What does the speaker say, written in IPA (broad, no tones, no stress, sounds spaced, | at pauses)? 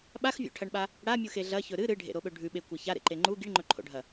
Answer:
ɓ a x vʲ o̰ ʈʰ ɐ ɳ ɓ a | ɽ a mʲ u x e ɮ ɐ ç ɵ ɾ ɨ ɾ ɨ ɖʱ ḛ ɾ o ɓ ɵ ɖʱ ʉ ɓ e kʷ ɐ ç a ɾ ḛ ǃ e ŋ͡ǃ u ɡ i ɳ ŋ͡ǃ ɵ ǃʰ o̰ ɖʱ ɐ